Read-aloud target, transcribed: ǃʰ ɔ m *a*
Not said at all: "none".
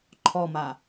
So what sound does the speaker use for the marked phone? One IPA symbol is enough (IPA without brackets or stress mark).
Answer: a